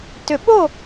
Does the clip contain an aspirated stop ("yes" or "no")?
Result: no